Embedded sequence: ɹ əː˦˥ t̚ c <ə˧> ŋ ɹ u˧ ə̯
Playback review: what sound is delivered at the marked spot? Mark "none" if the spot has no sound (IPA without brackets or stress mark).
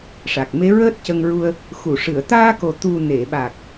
ə˧